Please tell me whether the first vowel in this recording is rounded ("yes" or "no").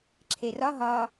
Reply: no